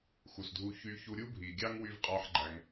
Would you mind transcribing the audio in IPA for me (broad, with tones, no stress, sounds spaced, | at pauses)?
x u˨ s dʱ u˧ ç y˧ ç u˧ ɾʲ u˦ bʱ i˨ ɡʲ ɑ˦ ŋ w y˦ v qʼ ɑ˦ ħ ɡ͡ǃ æ˧ ŋ